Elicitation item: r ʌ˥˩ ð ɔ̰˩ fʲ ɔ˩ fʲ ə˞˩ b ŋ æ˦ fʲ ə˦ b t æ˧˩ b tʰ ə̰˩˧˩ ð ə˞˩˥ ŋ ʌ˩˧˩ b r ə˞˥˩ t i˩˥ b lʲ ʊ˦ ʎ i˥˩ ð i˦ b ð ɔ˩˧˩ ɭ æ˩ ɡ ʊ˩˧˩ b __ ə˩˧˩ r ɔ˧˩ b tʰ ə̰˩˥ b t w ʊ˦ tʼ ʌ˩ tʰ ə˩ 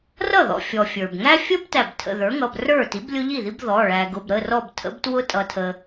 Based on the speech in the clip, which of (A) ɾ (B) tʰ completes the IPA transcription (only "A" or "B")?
A